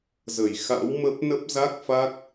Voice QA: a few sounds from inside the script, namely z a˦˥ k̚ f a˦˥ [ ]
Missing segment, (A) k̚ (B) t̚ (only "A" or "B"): A